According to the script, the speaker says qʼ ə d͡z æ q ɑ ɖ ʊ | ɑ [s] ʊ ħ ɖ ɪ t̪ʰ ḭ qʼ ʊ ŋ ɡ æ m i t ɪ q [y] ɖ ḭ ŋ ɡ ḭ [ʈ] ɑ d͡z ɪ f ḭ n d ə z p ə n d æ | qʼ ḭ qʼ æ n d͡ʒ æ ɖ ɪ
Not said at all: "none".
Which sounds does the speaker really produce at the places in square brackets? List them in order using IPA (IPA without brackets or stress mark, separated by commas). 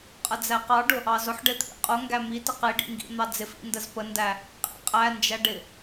z, i, n̪